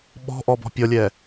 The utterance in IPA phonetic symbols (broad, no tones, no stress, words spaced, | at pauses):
ɓɔ̤ʔɔ bɔ̤pʲɔlʲɛ